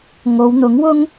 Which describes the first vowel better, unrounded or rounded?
rounded